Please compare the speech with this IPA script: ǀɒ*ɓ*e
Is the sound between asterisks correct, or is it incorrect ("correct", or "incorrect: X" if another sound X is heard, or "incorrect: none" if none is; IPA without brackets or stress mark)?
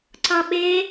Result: correct